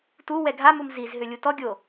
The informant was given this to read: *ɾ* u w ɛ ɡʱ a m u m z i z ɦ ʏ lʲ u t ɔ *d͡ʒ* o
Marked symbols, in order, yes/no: no, no

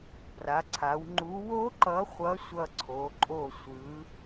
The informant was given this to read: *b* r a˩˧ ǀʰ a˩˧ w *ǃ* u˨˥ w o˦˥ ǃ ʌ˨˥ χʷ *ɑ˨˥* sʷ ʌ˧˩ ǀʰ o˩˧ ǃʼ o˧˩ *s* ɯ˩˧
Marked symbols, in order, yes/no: yes, no, no, no

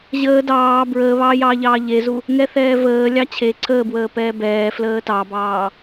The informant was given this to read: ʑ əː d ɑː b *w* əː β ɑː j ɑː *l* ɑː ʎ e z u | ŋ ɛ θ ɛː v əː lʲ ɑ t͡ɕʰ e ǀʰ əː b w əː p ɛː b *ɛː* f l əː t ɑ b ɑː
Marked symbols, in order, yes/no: no, no, yes

